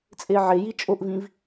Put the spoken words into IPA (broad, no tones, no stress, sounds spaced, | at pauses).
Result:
t͡sʼ e ʕ e j i t͡ʃʼ o ʔ v ĩ v